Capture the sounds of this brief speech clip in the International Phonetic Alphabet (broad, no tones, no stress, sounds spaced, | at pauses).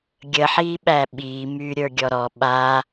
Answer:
ɡʲ ə ħ iː ɓ æ ɓ iː m yː ɾʲ ə˞ ɡʲ ɔ ɾ ɔ ɓ aː